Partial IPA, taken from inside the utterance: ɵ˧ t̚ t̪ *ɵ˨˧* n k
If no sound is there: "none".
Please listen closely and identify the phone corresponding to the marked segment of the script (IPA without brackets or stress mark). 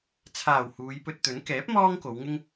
ɵ˨˥